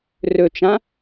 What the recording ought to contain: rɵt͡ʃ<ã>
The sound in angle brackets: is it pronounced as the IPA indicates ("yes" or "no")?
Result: yes